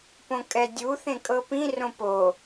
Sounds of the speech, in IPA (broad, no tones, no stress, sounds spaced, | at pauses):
p õ kʼ ɛ dʲ u θ ẽ kʼ ɤ p ĩ r õ p o